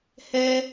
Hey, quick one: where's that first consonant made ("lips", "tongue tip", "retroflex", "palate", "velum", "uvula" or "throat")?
throat